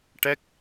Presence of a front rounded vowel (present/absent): absent